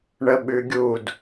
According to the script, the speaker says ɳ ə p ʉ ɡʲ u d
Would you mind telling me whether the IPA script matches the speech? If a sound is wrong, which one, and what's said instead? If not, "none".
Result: p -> ɓ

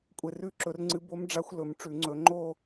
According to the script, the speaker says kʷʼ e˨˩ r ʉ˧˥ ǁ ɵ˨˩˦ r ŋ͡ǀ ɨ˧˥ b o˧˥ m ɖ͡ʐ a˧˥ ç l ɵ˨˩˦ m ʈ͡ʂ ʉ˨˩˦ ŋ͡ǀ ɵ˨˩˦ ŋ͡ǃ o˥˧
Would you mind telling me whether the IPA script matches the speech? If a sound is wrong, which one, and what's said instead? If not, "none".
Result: ç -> xʷ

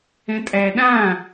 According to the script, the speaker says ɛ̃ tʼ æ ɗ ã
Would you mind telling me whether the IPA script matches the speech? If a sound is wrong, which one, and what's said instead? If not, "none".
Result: none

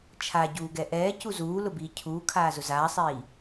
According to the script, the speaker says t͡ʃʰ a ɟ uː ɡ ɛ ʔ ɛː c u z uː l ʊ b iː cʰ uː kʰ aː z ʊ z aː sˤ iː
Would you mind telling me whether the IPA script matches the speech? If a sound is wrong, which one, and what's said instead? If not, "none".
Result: none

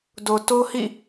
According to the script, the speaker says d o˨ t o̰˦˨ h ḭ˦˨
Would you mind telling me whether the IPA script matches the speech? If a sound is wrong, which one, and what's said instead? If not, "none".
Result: o̰˦˨ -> o˦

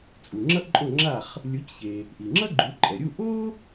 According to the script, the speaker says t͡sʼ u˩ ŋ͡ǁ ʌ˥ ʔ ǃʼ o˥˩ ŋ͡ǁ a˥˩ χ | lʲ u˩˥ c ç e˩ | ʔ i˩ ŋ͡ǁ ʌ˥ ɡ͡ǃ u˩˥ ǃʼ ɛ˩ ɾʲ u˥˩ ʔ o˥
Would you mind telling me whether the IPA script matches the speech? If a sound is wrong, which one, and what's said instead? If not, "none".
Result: none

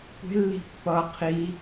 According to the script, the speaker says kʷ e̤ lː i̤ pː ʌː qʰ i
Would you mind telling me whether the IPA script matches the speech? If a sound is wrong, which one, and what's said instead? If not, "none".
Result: none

